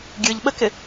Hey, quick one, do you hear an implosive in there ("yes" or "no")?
yes